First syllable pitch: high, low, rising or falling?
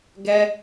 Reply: high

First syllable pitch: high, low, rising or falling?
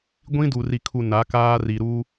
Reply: high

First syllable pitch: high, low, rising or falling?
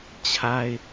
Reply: high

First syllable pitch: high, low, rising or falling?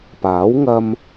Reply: rising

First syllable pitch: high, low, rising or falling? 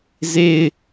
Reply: falling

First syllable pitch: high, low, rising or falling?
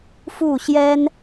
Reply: falling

